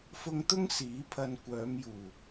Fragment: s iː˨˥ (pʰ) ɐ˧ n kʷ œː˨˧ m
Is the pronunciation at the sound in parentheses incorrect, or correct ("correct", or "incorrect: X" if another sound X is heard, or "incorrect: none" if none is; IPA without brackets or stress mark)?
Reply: correct